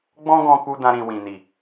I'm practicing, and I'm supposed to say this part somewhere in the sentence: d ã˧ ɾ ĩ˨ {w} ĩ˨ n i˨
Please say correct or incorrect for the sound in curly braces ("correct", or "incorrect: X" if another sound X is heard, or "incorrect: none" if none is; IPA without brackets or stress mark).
correct